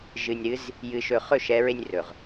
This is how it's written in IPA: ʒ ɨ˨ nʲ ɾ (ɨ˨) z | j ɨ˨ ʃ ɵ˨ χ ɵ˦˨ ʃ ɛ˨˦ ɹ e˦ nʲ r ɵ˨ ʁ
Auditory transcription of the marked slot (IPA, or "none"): ɨ˨˦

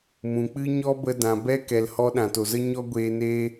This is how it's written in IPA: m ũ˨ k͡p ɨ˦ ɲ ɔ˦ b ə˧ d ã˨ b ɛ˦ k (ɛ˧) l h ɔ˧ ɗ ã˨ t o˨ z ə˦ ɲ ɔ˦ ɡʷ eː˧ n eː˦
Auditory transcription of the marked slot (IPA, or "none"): ɛ˨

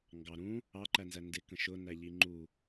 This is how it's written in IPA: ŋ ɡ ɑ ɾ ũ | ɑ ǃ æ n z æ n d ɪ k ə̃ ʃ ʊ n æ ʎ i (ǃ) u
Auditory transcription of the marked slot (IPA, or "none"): ŋ͡ǃ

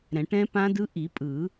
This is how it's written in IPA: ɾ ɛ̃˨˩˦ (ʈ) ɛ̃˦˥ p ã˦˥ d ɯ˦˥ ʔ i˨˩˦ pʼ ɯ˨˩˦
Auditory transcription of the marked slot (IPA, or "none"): ʈ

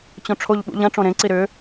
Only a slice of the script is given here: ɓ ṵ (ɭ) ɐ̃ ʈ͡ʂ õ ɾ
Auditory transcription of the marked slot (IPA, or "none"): ʎ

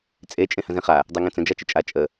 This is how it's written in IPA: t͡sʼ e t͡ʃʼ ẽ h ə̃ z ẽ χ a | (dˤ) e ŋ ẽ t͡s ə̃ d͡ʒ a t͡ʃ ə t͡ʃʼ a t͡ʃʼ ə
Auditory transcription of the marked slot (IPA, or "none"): dˤ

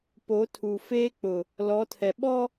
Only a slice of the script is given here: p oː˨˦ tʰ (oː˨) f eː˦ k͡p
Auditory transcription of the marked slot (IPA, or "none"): uː˨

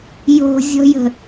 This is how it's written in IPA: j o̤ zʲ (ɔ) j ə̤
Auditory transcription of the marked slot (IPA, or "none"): ɔ̤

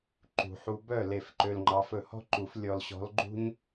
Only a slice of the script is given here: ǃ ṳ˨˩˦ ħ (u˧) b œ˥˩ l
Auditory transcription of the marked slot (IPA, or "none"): u˧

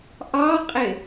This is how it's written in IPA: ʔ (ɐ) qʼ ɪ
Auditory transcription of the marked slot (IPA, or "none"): ɑ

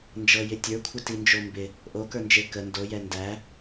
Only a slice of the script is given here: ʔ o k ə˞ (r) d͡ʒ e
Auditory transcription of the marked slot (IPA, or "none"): n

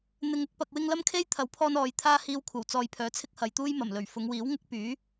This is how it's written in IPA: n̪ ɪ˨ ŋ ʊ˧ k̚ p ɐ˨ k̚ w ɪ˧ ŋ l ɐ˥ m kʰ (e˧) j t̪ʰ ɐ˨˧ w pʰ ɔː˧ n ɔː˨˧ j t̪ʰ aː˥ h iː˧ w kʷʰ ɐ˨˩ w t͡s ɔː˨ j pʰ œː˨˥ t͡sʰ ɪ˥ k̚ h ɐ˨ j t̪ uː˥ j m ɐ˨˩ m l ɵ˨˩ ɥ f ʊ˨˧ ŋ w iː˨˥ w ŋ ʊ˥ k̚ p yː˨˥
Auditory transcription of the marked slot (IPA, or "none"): e˥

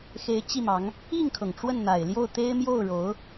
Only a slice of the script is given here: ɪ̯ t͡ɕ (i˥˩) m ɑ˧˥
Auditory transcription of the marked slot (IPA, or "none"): i˥˩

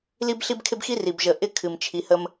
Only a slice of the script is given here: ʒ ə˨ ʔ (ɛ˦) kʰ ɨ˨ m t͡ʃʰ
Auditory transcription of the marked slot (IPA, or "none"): ɪ˦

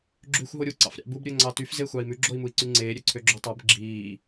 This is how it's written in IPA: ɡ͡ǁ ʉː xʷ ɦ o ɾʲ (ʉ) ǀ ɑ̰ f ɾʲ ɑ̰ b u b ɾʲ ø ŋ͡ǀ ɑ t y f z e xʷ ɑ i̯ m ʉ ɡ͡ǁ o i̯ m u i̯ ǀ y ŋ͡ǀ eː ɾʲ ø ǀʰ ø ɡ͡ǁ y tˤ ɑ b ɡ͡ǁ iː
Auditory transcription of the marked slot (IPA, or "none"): u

